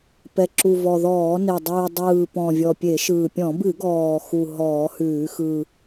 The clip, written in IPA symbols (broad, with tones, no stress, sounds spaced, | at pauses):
p ɛ˨˩ ǁ u˨˩ v ɔ˨˩ ð ɔː˧˩˧ n e˨˩ dˤ ʉː˨˩ dˤ ɯː˨˩ p ɔ̃˨˩ vʲ ɔ˨˩ pʲ e˧˩˧ ʃ ɯː˨˩ pʲ ɔ̃˧˩˧ b ɨ˧˩˧ ɡ ɔː˨˩ x u˨˩ ɦ ɔː˧˩˧ h ʉː˧˩˧ x ɯ˨˩